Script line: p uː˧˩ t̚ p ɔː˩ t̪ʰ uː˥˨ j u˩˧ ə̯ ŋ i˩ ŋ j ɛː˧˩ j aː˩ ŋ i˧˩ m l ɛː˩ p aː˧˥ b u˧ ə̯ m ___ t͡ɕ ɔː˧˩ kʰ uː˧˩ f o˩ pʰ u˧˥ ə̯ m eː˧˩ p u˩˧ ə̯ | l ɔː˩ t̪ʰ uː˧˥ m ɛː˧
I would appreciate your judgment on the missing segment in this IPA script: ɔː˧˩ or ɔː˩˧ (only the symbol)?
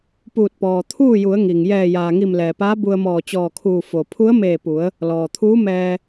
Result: ɔː˧˩